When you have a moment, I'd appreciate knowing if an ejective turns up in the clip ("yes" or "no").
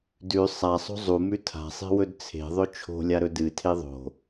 no